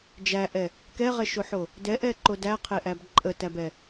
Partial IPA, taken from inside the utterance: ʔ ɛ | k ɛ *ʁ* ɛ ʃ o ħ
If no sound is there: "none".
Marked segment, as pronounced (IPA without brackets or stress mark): ʁ